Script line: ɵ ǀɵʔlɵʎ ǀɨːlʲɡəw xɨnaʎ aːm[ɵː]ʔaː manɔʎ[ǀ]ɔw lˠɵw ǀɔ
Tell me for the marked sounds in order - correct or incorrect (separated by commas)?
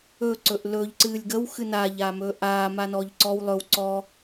correct, correct